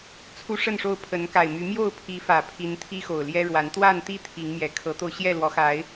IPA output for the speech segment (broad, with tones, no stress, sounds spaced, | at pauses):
t͡sʰ u˦ ʂ ə˥˨ n ʂ o˥˨ ʊ̯ pʰ ə˨˦ n k a˨˩ ɪ̯ m y˨˦ m j o˥˨ ʊ̯ pʰ i˨˦ f ä˨˩ pʰ i˨˦ n t̪ʰ i˦ x o˨˩ ʊ̯ l j ɛ˦ ɻ w a˨˦ n t̪ w a˥˨ n t̪ i˥˨ t̪ʰ i˨˦ ŋ m j ɛ˨˩ kʰ ɤ˨˦ t̪ o˧ ʊ̯ ɕ j ɛ˥˨ l w ɔ˨˦ x a˨˦ ɪ̯